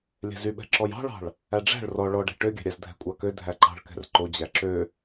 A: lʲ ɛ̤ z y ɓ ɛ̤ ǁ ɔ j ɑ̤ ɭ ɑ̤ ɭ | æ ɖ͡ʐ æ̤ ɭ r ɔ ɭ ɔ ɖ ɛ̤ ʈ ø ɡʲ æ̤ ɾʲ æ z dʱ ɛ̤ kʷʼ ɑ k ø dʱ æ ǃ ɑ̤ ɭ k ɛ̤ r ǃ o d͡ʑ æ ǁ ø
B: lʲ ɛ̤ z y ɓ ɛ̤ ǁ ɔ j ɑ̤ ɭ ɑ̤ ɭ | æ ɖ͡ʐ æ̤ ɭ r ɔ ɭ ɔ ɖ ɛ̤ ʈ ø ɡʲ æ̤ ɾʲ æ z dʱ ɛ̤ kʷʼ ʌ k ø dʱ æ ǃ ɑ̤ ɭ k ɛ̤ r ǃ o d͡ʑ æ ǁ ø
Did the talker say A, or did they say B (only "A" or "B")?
A